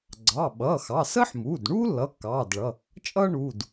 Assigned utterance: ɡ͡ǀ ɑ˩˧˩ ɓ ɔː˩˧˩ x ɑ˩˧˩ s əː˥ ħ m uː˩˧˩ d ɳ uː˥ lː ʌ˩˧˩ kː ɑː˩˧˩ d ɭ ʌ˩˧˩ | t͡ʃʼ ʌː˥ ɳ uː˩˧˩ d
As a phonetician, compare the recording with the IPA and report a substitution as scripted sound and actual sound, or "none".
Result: ɔː˩˧˩ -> ʌː˩˧˩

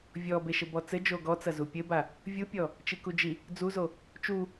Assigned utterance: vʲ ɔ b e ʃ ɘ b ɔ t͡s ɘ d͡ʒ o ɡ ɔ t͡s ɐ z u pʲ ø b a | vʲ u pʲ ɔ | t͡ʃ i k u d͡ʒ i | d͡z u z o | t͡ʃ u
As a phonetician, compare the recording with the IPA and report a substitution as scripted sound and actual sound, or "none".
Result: ø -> ɘ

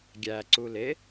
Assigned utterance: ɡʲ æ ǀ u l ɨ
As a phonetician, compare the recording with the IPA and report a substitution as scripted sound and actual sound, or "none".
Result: ɨ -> e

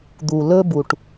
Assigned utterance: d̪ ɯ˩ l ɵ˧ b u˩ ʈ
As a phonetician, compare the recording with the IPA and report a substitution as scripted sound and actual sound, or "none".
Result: ɯ˩ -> u˩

